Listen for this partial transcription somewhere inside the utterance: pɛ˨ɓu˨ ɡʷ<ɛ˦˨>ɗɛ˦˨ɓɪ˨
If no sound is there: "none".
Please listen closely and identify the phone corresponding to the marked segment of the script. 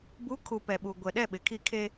ɛ˨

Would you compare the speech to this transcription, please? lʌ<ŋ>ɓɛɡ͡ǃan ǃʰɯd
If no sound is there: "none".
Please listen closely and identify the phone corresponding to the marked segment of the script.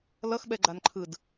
x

